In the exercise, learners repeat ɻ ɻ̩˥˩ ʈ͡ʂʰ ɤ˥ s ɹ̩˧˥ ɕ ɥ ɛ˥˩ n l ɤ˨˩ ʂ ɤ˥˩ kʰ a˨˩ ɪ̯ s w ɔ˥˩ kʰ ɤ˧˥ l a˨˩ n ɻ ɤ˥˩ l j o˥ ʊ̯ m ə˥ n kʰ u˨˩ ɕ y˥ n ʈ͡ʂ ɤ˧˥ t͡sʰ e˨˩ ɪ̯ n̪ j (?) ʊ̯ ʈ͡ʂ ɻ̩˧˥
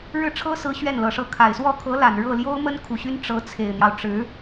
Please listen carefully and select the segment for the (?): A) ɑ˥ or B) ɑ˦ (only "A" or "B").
B